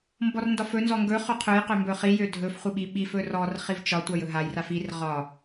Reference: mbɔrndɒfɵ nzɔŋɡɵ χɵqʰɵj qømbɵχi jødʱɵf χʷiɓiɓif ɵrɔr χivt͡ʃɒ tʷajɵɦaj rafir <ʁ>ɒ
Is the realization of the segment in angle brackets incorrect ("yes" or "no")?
no